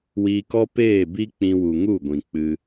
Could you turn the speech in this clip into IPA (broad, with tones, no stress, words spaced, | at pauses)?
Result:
wiː˧kɔ˦ peː˦˨bi˦ k͡pĩ˧wu˨ ŋu˦˨ɡʷĩ˨k͡pɨ˧